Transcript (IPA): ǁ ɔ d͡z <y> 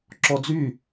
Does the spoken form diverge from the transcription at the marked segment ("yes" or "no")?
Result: no